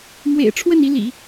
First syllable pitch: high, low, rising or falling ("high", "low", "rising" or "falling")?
low